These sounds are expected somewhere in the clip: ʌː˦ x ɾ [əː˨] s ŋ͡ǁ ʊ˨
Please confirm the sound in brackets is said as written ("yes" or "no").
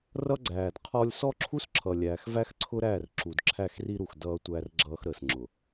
yes